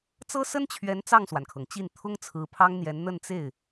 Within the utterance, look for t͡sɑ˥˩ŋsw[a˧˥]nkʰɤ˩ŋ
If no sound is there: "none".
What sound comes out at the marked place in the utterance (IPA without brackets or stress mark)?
a˩